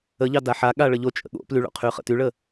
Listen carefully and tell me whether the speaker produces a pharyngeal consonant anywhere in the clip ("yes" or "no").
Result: yes